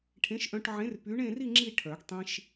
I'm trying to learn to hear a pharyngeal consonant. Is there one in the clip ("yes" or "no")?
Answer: yes